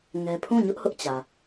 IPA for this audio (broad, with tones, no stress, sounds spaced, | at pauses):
ŋ ɛ˦ pʰ ũ˦˨ ɲ ʊ˦ ʔ h ʊ˦ ʔ t͡ɕ ä˨